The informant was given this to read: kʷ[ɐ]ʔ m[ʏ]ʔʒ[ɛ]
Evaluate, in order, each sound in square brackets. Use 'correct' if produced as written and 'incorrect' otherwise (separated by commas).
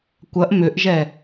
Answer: correct, correct, correct